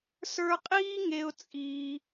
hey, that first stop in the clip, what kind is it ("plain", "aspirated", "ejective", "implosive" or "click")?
ejective